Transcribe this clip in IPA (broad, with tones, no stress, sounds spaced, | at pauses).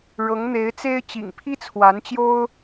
ɻ ɤ˧˥ ŋ n̪ e˧˥ ɪ̯ t͡s e˥ ɪ̯ t͡ɕ ḭ˨˩ ŋ pʰ i˥ t͡sʰ w a˧˥ n t͡ɕ j o˥ ʊ̯